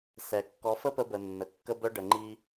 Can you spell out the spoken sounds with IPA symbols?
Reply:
sɛ˨ kːɔ˨˦fə˦pə˧bə˨ nːə˨kːə˦bœ˦ ɖə˨ŋ͡ǃi˧

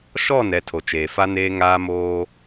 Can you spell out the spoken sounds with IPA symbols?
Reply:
ʃɔ˦˨nɛ˨ tʰo˨t͡ʃeː˨fa˦ neː˦ŋaː˦moː˦

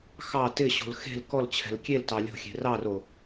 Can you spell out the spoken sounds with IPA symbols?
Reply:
xɑ tɪɕo̤l xe̤l kɔlt͡ɕʰɛ̤l kʲeltɑ lʲo̤xʲe̤ rɑro

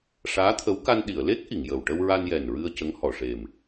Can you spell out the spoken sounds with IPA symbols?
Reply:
ʂaː˧˥t̪ʰə˧˥w ka˧nɗi˨˩˨ə̯ le˦˥k̚ ʔi˨˩˨ŋjə˨˩w ʈə˧wɹa˧njɛ˨˩n ɹɨ˧ə̯ cə˧˥ŋhɔ˨˩˨ ʂe˨˩m

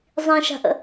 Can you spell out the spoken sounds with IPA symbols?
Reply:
zˤĩʃa̤ʔə̰

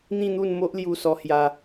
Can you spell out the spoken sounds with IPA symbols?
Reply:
n̪ĩ˥˧n̪u˥˧nmo˦ʔ lju˥˧sɔ˦hja˦

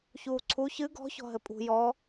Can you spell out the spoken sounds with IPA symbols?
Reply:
çuːǀʰu çɨ ɡɔ̤ çɔ̤ɦɘpʼṳ jɔ

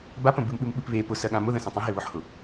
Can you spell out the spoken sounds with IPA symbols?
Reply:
bapə̃ bɨmɓɨmɓɨp βe pʊsɜɠã mʊðə̃sə̃ tˤẽɦeβʊħhʊ

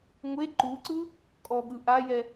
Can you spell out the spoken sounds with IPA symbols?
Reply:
ŋʷe ǃuǀɯ | kʼɔɠɯ ʔajɛ

